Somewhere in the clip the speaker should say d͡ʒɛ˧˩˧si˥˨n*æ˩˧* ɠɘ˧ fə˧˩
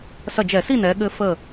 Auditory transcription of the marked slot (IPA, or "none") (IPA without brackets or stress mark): ɛ˩˧